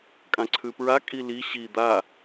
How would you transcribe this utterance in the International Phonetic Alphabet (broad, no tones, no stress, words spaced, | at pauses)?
kʼãǀʰʉpɹa kʼili ɕi d̪a